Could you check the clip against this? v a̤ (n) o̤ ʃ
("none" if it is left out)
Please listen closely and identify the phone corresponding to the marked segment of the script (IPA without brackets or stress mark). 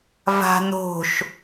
n